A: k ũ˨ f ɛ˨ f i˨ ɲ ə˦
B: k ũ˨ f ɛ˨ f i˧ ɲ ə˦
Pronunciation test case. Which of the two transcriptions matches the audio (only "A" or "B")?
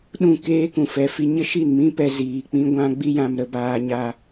B